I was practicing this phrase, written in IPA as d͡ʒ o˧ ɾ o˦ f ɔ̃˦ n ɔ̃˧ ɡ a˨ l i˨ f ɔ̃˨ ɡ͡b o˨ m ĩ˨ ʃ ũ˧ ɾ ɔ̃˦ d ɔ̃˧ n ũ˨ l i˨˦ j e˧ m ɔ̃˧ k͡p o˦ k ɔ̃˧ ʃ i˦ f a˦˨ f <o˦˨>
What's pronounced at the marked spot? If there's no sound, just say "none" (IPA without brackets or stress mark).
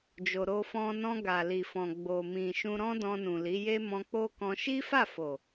o˨